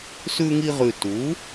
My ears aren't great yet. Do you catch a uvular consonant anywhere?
yes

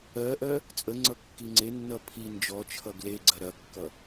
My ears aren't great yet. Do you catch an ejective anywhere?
yes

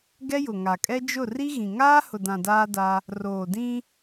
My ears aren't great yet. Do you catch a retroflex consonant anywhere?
no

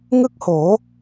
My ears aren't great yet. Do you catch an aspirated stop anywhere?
no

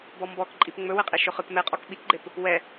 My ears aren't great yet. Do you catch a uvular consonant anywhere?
yes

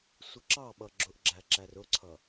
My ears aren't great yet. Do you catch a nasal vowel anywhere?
no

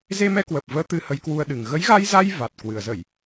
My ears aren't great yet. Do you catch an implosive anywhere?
yes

